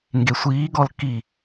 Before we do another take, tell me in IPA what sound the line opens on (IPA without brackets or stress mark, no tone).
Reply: ŋ